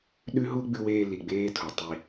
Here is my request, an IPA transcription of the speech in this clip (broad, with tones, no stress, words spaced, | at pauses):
ɗʉ˦ɦu˦ ɡ͡bʉ˦weː˦ li˨ɡ͡beː˦tʰo˨ tˤi˦